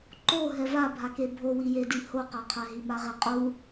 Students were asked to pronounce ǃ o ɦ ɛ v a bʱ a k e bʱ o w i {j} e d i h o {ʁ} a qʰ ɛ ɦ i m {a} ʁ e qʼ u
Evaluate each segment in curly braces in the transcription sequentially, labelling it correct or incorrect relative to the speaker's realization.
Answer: correct, incorrect, correct

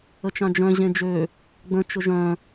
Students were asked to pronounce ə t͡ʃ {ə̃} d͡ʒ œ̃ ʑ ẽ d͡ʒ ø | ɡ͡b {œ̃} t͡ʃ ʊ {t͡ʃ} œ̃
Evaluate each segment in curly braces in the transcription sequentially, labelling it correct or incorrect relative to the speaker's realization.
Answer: incorrect, incorrect, incorrect

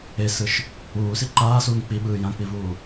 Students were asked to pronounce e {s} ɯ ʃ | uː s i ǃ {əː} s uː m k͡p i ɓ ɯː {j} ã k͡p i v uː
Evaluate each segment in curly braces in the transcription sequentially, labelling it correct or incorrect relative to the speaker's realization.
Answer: correct, incorrect, correct

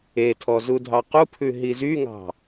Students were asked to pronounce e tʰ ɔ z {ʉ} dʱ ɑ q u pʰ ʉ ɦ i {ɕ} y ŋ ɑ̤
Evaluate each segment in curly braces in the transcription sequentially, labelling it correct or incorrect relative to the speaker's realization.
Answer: incorrect, incorrect

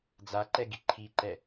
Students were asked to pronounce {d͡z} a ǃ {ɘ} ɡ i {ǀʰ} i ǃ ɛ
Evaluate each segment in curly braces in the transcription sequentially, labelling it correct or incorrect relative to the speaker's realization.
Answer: correct, incorrect, incorrect

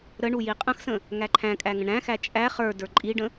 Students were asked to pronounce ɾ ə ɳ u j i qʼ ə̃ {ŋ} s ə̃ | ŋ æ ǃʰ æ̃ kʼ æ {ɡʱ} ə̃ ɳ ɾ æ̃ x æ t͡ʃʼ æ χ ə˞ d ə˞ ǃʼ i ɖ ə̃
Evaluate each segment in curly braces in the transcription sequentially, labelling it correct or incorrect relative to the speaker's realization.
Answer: incorrect, incorrect

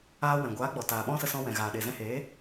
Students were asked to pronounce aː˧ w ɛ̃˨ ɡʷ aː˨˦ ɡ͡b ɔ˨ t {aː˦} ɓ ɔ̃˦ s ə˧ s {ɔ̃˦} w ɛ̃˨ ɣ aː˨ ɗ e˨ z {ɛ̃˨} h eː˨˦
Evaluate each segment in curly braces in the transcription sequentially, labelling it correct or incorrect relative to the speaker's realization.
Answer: incorrect, incorrect, incorrect

